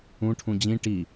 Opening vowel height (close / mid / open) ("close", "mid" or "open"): close